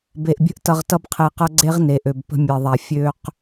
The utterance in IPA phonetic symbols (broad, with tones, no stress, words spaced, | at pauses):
be˨ʔbʲə̤˦ʔ tʌ˧ʁtʌ˦bqʰe˧qɐ˦ ɡ͡ǀe˦ʁne˨ʔø˨b pə̤˧mʲe˨ðˤa˨ fʲø˦q